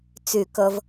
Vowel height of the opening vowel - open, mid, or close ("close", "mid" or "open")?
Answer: close